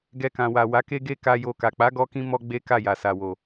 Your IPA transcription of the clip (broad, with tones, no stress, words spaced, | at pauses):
ɡɛ˧kã˨wa˨ wa˨˦ke˦ ɡe˦ka˧jo˧ka˨ k͡pa˨˦ ɡɔ˦kĩ˦ mɔ˦ɡ͡be˦ka˦˨ja˨ sa˨wo˨